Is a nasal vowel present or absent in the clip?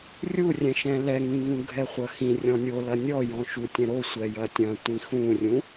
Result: present